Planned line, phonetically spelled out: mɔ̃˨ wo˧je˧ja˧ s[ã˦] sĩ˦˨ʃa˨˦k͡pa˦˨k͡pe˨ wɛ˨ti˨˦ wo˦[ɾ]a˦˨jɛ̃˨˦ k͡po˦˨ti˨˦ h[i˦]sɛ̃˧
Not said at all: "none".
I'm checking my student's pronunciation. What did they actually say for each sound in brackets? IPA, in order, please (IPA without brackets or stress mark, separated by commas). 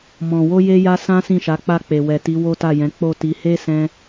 ã˦, t, e˦